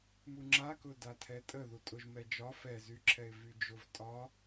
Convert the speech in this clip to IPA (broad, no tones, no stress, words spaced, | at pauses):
muŋ͡ǁakʊda tʰɛtʼə ðutʼʊʒ mɛd͡ʒɒ fɛzyǁʰɛɪ̯ vyd͡ʒʊv tʼɒ